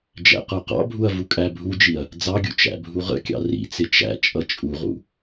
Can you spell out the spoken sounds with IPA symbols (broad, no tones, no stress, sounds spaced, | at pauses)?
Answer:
d͡ʒ æ̰ q ə˞ q ɑ̰ bʱ u ɐ̯ v u kʼ æ bʱ u d͡ʒ i ɐ̯ | d͡z ɑ ɡʲ ṵ t͡ʃ æ̰ bʱ u ʁ ə̰ kʲ ɑ̰ r ḭ t͡s ɪ t͡ʃ æ̰ t͡ʃʼ ʌ t͡ʃʼ u ʁ ṵ